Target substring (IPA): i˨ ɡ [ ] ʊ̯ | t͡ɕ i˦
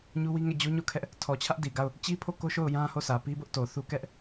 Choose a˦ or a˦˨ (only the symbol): a˦˨